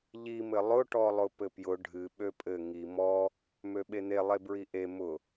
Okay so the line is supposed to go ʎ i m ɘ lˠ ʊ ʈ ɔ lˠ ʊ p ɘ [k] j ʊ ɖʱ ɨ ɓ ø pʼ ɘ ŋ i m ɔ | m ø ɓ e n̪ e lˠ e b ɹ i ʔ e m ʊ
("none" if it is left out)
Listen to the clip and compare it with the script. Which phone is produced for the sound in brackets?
p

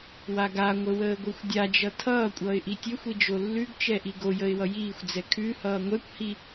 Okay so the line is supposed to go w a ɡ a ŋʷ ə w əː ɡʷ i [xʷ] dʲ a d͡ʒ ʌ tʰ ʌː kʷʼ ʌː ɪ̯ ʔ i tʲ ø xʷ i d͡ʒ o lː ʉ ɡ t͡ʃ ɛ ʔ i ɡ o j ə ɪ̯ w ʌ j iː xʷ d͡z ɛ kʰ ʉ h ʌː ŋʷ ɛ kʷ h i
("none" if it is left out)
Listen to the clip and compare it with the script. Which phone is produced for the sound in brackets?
xʷ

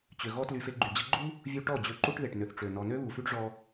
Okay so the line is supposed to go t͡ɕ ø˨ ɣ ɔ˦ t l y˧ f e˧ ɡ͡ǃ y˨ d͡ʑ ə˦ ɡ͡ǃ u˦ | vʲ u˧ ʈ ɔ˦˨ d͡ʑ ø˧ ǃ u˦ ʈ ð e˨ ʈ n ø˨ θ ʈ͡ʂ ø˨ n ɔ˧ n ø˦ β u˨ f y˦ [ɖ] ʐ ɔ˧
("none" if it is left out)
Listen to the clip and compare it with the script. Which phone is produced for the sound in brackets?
ɖ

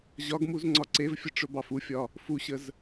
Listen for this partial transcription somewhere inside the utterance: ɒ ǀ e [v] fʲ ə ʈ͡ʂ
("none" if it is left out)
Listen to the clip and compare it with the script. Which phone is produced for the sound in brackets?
v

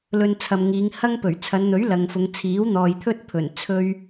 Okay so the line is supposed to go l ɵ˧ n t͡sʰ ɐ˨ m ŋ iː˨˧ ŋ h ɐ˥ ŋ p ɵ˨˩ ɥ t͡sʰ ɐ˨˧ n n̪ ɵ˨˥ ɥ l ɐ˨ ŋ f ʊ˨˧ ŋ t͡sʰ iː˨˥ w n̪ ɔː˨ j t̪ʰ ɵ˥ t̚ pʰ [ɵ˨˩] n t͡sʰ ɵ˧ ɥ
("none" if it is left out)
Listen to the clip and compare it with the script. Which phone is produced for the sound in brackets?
ɵ˨˩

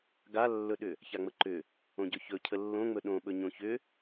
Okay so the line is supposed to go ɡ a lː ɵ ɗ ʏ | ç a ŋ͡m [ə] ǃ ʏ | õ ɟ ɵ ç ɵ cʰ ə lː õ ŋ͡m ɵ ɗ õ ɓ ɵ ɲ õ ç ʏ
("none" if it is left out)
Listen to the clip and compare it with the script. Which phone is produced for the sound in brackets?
ə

